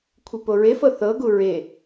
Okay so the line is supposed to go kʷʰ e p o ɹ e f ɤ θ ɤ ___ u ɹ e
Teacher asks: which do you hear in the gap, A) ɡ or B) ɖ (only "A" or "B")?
A